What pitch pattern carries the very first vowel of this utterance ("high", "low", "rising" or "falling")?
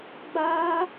high